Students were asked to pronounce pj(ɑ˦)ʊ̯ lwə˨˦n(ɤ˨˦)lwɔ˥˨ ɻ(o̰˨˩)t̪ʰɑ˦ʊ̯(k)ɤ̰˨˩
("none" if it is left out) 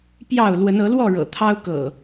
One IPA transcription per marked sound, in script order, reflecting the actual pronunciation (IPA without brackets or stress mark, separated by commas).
ɑ˥˨, ɤ˨˦, ɤ̰˨˩, k